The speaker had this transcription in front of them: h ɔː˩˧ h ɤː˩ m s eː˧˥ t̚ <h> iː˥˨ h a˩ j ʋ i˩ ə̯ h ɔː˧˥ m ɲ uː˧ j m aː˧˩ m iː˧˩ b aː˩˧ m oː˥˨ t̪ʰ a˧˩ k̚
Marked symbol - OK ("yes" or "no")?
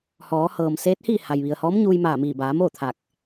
yes